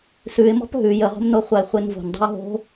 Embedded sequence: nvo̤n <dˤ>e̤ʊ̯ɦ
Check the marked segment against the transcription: correct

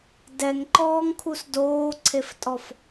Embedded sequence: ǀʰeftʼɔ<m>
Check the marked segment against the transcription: incorrect: f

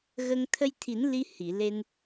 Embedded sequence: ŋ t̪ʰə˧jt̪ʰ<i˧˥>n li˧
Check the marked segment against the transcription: incorrect: i˨˩˦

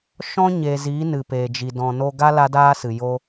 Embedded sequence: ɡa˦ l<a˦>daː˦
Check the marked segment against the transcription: correct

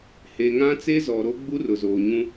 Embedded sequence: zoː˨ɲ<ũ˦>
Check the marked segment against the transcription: correct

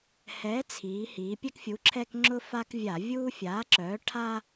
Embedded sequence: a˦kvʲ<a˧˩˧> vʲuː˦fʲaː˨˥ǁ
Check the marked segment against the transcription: correct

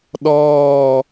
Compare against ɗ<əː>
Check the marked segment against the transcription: incorrect: ɔː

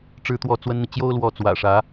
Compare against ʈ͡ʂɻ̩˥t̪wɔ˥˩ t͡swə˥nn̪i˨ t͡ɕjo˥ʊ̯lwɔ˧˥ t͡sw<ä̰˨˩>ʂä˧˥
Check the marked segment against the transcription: correct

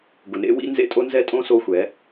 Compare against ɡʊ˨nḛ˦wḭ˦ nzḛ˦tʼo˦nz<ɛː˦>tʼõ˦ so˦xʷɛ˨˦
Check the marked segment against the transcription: incorrect: ɛ˦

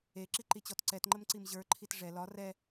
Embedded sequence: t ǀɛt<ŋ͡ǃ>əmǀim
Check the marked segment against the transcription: correct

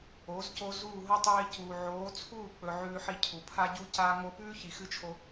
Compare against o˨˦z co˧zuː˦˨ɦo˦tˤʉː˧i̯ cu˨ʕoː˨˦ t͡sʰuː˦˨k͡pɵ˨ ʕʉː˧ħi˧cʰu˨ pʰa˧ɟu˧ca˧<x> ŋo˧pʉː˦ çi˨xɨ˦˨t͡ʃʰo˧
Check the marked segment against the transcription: incorrect: none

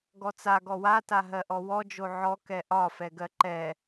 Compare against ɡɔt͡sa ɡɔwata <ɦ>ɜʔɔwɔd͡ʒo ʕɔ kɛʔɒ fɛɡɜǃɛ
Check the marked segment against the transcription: correct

